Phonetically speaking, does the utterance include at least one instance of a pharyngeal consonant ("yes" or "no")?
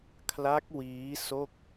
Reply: no